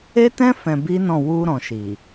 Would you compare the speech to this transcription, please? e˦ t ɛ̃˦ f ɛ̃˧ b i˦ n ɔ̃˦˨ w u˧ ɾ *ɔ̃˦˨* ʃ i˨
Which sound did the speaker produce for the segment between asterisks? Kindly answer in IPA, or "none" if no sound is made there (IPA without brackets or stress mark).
ɔ̃˨